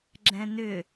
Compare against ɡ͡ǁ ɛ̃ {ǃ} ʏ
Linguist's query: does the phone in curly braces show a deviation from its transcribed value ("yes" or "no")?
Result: yes